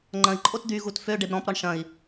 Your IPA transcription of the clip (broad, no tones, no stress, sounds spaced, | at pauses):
ŋ͡ǃ ɐ̃ i̯ ǃʼ o t d̪ y ɣ u t f ø ɖ e b ɾ ɔ̃ p ɾ ɔ ɳ ʃ ɐ̃ i̯